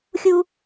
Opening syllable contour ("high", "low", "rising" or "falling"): high